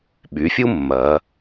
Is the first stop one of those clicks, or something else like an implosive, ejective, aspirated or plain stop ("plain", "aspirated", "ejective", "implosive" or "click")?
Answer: implosive